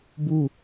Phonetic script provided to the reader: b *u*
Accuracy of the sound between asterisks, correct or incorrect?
correct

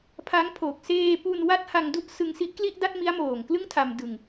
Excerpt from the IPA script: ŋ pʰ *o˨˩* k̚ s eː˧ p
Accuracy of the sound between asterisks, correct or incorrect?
correct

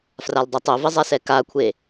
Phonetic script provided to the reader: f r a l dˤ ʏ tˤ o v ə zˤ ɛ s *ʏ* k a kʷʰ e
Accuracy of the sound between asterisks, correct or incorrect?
incorrect: ɛ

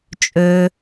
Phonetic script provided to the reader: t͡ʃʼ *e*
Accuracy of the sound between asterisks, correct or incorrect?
incorrect: ø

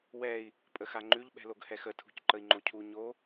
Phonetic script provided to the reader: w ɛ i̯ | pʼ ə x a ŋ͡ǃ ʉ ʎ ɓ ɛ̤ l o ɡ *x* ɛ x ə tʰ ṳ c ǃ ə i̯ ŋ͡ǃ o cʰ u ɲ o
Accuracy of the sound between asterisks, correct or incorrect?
incorrect: h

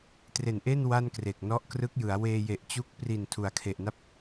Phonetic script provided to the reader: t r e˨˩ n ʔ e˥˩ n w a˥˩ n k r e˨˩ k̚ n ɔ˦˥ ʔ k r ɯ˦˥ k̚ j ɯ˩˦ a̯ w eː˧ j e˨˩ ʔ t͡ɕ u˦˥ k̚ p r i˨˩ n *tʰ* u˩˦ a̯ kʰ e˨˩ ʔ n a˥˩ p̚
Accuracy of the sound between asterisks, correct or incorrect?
correct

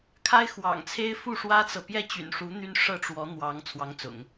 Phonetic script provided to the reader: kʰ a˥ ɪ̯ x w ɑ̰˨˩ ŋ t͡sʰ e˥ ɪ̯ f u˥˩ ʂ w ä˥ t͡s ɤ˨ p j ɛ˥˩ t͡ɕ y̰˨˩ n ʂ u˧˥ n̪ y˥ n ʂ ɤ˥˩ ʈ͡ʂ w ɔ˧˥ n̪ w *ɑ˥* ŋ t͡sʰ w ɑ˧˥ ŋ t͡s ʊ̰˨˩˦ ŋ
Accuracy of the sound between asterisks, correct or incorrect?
incorrect: ɑ˧˥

